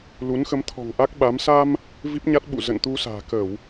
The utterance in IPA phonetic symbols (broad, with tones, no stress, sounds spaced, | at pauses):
l u˨˦ n x ə˨˦ m t̪ʰ ɔ̤˨˩ ŋ ʔ a˦˥ k̚ ɓ a˨˦ m s a˧ m | v i˦˥ p̚ ɲ a˦˥ t̚ ɓ ṵ˧˨ z ə̰˧˨ n t̪ u˧ s a̤ː˨˩ k ə˧˩˨ w